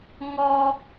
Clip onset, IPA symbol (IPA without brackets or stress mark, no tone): ŋ